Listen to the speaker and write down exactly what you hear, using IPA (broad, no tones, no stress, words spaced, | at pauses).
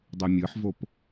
dˤymʲɯħvop